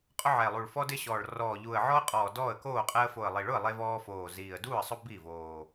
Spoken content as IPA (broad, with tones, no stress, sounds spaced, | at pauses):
qʼ ʊ˦ ʕ ɛ˨˩ lˠ u˨˩ ɭ f ɔ˦ d ɪ˦ ɕ ɔː˨˩ ɭ r ɔː˨˩ ʎ u˨˩ ə̯ ʕ ɔ˦ ə̯ qʼ ɔː˨˩ d ɔː˥˨ ə̯ k oː˥˨ qʼ ɛ˦ ə̯ f o˨˩ ə̯ lˠ i˨˩ ɭ ʊ˥˨ ə̯ lˠ e˦ v ɔː˦ f oː˨˩ z iː˨˩ ə̯ d uː˥˨ ə̯ sˤ ʊ˦ b i˥˨ v oː˨˩